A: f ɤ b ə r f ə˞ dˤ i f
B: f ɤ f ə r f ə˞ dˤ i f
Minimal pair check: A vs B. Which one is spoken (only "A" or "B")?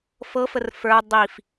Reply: B